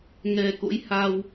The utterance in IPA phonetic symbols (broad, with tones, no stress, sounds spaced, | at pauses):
ŋ ɛ˨˩ k o̰˧˥ j h a˧ w